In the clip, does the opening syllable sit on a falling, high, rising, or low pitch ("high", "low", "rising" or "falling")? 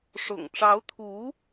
low